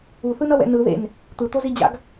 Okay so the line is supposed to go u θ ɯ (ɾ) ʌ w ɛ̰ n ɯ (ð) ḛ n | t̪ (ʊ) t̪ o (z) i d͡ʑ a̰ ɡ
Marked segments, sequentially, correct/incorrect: incorrect, correct, incorrect, correct

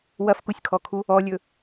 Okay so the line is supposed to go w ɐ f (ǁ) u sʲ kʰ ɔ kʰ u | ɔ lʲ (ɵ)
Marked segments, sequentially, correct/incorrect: incorrect, correct

